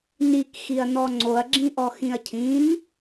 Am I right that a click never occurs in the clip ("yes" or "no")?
no